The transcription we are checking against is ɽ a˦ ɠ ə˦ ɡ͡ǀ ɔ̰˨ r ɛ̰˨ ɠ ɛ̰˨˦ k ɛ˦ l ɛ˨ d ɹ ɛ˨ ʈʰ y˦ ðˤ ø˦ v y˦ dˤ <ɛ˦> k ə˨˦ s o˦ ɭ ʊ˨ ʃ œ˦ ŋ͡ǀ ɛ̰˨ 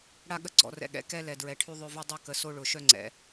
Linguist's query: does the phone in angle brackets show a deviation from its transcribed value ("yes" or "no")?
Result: yes